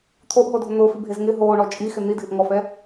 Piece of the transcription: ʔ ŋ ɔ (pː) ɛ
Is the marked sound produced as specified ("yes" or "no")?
no